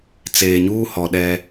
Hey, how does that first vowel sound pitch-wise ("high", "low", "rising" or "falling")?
low